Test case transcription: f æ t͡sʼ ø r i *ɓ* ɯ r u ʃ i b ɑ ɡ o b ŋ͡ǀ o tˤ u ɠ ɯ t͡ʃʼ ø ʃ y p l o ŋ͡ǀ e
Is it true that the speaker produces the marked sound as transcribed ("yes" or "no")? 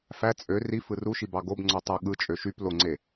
no